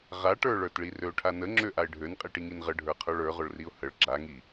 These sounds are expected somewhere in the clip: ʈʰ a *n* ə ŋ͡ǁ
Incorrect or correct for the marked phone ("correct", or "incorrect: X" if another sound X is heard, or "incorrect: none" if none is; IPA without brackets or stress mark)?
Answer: correct